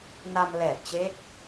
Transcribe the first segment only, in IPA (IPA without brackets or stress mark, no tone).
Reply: n